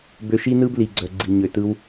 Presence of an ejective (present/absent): absent